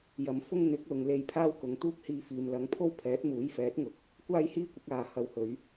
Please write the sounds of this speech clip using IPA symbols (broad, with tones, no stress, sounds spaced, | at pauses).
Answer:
j ɐ˨˧ m f ʊ˥ ŋ n̪ ɪ˨˥ k̚ l ʊ˨ ŋ l e˧ j pʰ aː˥ w k ʊ˨ ŋ t̪ uː˥ k̚ h iː˧ f iː˨ m l ɐ˨˥ ŋ pʰ o˥ w pʰ ɛː˨˥ t̚ m uː˨˥ j f ɛː˨˥ t̚ ŋ ʊ˨ k̚ | kʷ aː˥ j h iː˥ kʷ ɪ˨˥ k̚ aː˧ h ɐ˨ w h ɵ˨˧ ɥ